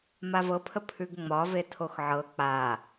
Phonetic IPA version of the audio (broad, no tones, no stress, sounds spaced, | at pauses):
m a v ɤ pʰ ə pʰ ʉ ɡ ŋ͡m ɒ v e tʰ o x ʕ ɤ k͡p a